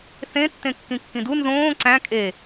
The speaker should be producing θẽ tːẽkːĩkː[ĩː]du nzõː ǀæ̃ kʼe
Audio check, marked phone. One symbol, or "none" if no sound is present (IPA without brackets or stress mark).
ĩ